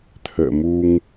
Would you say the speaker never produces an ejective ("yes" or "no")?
yes